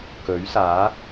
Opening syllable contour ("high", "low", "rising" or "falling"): rising